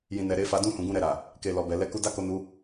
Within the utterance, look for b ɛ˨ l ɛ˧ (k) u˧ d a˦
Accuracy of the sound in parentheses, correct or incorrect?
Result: correct